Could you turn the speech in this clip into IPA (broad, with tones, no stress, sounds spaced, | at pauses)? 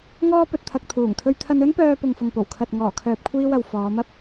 ŋ ɔː˧ p ɵ˨ t̚ t̪ʰ ɐ˨ k̚ t̪ʰ uː˨˩ ŋ t̪ʰ ɵ˧ ɥ t̪ʰ ɐ˧ n ɵ˥ n p œː˧ p ʊ˨ ŋ f ʊ˨ ŋ p o˨˩ w kʰ ɐ˨ t̚ ŋ ɔː˨˩ kʰ œː˨ p̚ kʷʰ iː˧ w ɐ˨ w f ɔː˨˧ m ɐ˥ p̚